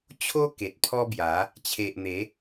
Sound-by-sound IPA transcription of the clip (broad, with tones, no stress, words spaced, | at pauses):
t͡ɕʰo˦ ke˨t̚pʰɔ˦bja˨˦ | t͡ɕʰe˨ʔ n̪e˨˦